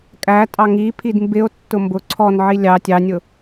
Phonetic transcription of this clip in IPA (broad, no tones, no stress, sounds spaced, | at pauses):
kʼ æ tʼ ɑ ŋ i pʰ i d m b ɪ o̯ tː ʊ m b ʊ ǀʰ ɔ n ʕ i lʲ ɑ tʲ ɑ nʲ ʊ